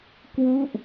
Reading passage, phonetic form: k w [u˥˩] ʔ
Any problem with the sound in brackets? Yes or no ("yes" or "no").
no